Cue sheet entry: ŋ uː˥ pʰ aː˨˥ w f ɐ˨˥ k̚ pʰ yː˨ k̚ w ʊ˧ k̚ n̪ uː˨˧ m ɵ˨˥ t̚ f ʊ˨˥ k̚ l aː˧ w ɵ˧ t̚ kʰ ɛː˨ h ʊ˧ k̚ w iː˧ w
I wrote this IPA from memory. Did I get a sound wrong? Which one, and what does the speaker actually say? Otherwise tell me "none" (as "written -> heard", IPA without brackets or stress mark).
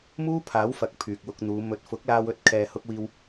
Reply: ŋ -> m